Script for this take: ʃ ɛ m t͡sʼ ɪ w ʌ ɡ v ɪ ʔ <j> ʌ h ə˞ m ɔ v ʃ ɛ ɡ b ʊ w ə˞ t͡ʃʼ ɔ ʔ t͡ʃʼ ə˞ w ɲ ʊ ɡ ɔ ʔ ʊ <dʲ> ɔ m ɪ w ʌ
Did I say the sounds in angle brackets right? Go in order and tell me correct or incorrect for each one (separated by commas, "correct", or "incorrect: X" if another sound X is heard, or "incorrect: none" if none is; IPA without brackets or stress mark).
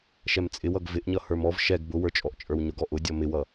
incorrect: ɲ, correct